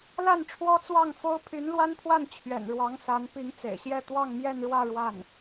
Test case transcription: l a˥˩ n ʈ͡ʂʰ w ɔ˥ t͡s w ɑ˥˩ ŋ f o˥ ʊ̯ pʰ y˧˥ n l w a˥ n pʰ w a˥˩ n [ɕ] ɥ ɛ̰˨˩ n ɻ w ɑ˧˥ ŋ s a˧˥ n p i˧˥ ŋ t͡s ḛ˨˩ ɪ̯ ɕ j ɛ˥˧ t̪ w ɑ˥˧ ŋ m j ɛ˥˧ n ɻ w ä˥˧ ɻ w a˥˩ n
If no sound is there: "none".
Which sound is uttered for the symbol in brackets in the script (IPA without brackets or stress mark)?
t͡ɕʰ